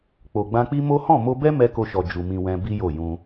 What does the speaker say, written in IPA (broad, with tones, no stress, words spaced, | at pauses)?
k͡po˨ɡ͡bã˧k͡pi˦ mo˦ hɔ̃˦˨mo˧bɛ˦ mɛ˧ko˧ʃɔ˨ d͡ʒu˧mĩ˧wɛ̃˦ bi˦jo˦˨jũ˧